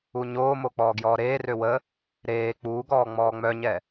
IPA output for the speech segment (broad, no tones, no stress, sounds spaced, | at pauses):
u ɲ oː m o k͡p ɔː ɡ j ɔː ɾ eː r ø w ə | ɾ eː k͡p uː ɡ ɔː ŋ͡m ɔː ŋ͡m œ ɲ ɛ